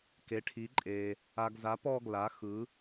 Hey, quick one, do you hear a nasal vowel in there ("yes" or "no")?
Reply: no